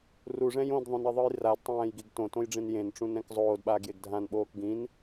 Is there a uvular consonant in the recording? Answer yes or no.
no